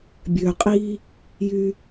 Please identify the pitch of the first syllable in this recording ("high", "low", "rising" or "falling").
low